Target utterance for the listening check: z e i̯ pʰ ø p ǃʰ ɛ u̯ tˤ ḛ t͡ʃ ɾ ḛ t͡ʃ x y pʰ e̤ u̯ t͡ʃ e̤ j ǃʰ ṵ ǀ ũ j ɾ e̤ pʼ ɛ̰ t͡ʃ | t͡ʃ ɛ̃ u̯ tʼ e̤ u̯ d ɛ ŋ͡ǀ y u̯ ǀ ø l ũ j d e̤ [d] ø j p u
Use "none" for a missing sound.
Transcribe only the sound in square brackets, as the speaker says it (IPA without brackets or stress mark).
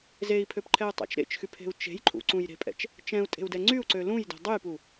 dˤ